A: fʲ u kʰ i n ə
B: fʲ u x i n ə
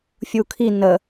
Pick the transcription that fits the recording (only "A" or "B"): A